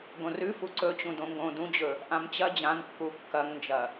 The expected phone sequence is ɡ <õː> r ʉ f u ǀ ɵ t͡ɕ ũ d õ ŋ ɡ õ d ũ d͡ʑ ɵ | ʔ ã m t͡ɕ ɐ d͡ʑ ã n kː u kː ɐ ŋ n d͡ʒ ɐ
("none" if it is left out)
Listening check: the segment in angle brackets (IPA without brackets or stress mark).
õ